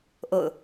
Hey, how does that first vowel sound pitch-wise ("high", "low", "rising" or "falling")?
falling